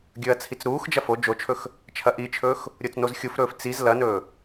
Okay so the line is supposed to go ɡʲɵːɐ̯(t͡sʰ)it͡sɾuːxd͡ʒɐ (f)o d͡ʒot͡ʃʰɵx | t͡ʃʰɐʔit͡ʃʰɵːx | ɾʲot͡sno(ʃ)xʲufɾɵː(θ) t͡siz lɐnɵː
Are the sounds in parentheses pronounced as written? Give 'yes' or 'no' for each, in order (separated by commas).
yes, yes, no, no